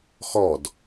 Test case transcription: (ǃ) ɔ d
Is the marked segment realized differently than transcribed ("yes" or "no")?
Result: yes